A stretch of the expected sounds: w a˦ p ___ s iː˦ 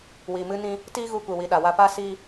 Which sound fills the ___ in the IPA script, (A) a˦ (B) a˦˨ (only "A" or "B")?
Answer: A